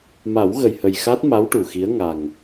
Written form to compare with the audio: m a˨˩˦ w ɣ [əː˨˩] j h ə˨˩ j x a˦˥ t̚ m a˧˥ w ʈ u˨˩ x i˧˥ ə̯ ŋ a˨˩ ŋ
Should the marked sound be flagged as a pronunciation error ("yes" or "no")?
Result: yes